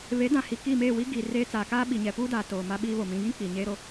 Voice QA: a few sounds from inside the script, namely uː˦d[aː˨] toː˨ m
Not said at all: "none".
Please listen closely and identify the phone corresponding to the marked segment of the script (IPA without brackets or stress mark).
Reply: aː˨